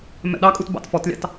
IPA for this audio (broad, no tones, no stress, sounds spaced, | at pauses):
m ɛ̰ ɗ ɑ kʼ u t b ɑ̰ t f ɔ t lʲ ɑ̰ t